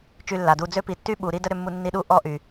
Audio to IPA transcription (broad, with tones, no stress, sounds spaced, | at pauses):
t͡ʃ y˧ lː a˨ d uː˧ d͡z ø˦ p i˨˦ tː y˦ ɓ uː˨ ɾ i˦ d ə˦ ɾ ʏ˧ mː u˧ nː i˧ ɗ uː˦ ʔ ɔ˦ ʔ y˨